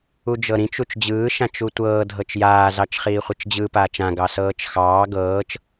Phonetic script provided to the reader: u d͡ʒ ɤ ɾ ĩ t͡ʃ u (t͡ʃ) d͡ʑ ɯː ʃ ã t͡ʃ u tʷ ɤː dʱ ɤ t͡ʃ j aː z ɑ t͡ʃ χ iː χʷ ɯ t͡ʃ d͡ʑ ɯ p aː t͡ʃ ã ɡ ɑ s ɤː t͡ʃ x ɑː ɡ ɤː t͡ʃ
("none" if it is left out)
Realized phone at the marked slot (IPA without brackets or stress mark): t͡ʃ